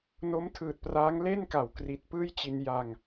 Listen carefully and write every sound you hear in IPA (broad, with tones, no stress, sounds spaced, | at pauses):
n o˦˥ m tʰ ɯː˨˩ t̚ p r aː˦˥ ŋ l e˥˩ n k a˩˦ w k r i˨˩ t̚ p ɯː˥˩ j t͡ɕ i˧ n j a˧ ŋ